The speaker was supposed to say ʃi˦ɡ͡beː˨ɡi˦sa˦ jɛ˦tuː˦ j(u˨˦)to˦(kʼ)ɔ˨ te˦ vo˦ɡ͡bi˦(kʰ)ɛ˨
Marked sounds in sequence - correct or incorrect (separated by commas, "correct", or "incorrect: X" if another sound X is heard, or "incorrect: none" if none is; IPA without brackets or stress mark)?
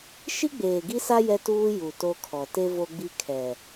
incorrect: u˨, incorrect: kʰ, correct